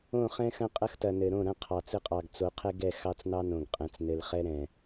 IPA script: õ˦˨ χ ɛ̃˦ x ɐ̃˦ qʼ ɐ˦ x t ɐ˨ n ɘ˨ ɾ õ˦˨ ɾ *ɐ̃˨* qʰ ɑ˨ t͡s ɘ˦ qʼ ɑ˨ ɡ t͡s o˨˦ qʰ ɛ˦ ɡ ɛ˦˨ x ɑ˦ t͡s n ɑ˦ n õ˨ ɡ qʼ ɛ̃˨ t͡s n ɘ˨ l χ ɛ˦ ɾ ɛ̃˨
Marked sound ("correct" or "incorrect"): incorrect